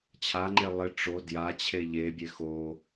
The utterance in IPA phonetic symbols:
t͡ɕʰ a ŋ͡ǃ e lˠ ɪ ʈ͡ʂ o d j a t͡ɕʰ e ʎ e bʲ e x o

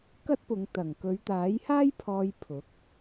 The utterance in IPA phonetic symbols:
k ɐ˥ t̚ p ʊ˨˧ ŋ t̪ ɐ˨˩ ŋ k ɵ˨˧ ɥ t̪ aː˨˥ j h aː˥ j pʰ ɔː˧ j pʰ ʊ˨˥ k̚

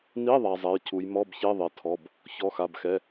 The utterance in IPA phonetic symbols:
n i˧˥˧ ðˤ a˧ zˤ ɛ˧˥˧ j cʰ u˧˥ j m ɔ˧˥˧ b ç e˧˥˧ ðˤ e˧ tʰ ɔ˧˥˧ b | ç ɔ˧˥˧ x a˧˥˧ b x ɛ˧˥˧

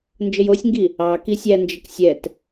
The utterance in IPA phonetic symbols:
n d͡ʒ ə j o sʲ ŋ ɡ i | ɑ k i sʲ æ n d͡ʒ ə k sʲ ɛ t

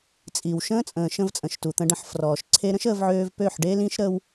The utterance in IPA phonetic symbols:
t͡sʼ i˨ w ʃ ə̃ː˦ t͡sʼ ə̃ː˨ ʃ ə̃˧ v t͡sʼ ə̃˨ ʃ t u˨ t̪ ə̃˧ ɖ ə̃˧ ħ f r ɔː˨ ʃ ǀʰ e˦ ɾ ə̃˦ ʃ əː˧ v ʕ øː˧ v p ø˦˨ ħ ɖ e˦ l ĩ˦ ʃ ɾ əː˦ w

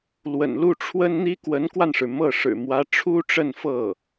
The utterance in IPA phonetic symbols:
l w ə̰˨˩ n l u˥˩ ʈ͡ʂʰ w ə˥ n n̪ i˥ k w ə˧˥ n k w a˧ n ʂ ɻ̩˩ m ɤ˥˩ ʂ ɻ̩˨˩ m w ä˧˥ ʈ͡ʂʰ u˥ ʈ͡ʂ ə˥˧ n f ɤ˥˩

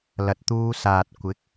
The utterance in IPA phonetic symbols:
l ɐ˨ t̚ t̪ uː˧ s aː˨ t̚ kʷ ɪ˨˥ k̚

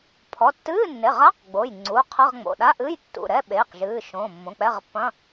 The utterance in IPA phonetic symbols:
pʰ ɔ˩˧˩ tː ɨː˧˥˧ nː e˩˧˩ ʁ a˧˥˧ q ɡ͡b o˩˧˩ j ŋ͡ǀ u˩˧˩ qʰ ɐ˧˥˧ ʁ ŋ͡m o̰˩˧˩ ɗ a˧˥˧ ʔ ɨː˧˥˧ j tː ṵ˩˧˩ ɾ ɛ˧˥˧ ɓ eː˩˧˩ q ʒ ɨː˩˧˩ ʃ õː˩˧˩ mː õ˩˧˩ k͡p ɛ˧˥˧ ʁ pː ɐ̃˧˥˧

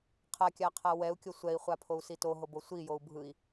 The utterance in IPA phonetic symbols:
qʰ a kʲ a qʰ a w ɛ u̯ kʲ o sʷ ɛ i̯ χʷ a pʰ o u̯ s i t o ɦ o b o sʷ i j o u̯ bʱ ɯ i̯

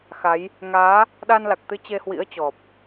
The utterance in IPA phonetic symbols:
x a˨˦ j | ŋ aː˨˦ | ɗ a˧ n l a˨˩ k̚ t̪ ɨ˧ t͡ɕ e˧ h w ḭ˧˥ ə̯ t͡ɕ ɔ˨˩ p̚

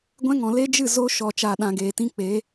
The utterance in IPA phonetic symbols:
ɡʷ ɛ̃˦ ŋ ɔ̃˨ l e˦ d͡ʒ ɨ˦˨ z o˧ ʃ ɔ˨ t͡ʃ a˨ ɗ ã˨ ɡ eː˨ t ĩ˦ k͡p e˨˦

